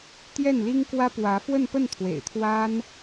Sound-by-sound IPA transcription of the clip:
t̪jɛ˥˩nli˥ŋkwä˥ pwä˧˥fwə˥˧npə˥˩nt̪ʰwḛ˨˩ɪ̯ t̪ʰwa˥n

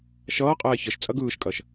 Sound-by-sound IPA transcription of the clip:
ʃʌːqʼɛː çəʃ t͡sʼɐɡɯːʃkʼɐʃ

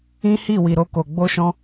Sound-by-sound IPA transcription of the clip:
ĩ˦hi˦˨ wi˧ɾo˦ko˧ ɡ͡bo˦ʃɔ̃˦

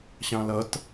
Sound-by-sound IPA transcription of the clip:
ɕɑ̃lʌt

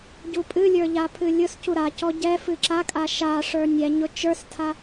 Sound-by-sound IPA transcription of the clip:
ɟupʼɨlʲə˞ ʎapʰɨlʲʊscu ɾacɔ ɟɛ fɨǁakʼa ʃaʂə˞ nʲɛɲʊ t͡ʃə˞stʰa

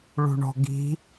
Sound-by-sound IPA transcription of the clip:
ɭṳɳɔ̤ɡi̤

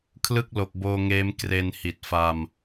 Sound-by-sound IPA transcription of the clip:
kʰlɯ˥˩k̚ lo˨˩k̚boː˧ŋeː˦˥m kre˧nhi˨˩t̚ fa˧m

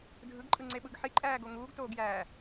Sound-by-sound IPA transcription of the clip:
dʱɯɡǃʼɯŋ͡ǀeɓɯɡ ħiǃʼæːɡo ŋuːɡtoːɡjæː

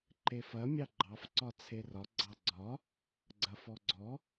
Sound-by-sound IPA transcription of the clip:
ǃefɐ mʲɑɡ͡ǃɑf ǀɒt͡sʰerɒ ɡ͡ǀɑɡ͡ǀɒ | ɡ͡ǀɐfɔɡ͡ǀɔ

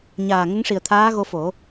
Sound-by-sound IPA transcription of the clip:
ɲaː˨˩ŋə˧˥ŋʂi˨˩ə̯ t̪ʰaː˧˥ɣo˧fo˨˩˦

